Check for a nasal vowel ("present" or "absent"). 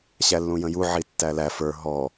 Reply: present